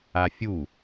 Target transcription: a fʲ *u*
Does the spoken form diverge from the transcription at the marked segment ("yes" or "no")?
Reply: no